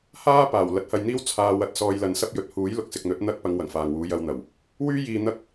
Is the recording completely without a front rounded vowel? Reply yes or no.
no